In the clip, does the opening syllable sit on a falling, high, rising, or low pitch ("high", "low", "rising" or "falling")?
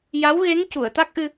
rising